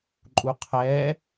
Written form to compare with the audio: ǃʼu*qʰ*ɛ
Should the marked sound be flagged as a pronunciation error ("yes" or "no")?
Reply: no